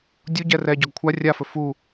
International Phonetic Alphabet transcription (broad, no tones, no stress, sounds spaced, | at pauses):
dʲ u ɟ ɛ r ɛ ɟ ɔ ɡ kʷʰ a rʲ a f ɵ f u